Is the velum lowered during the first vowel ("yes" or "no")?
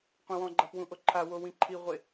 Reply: yes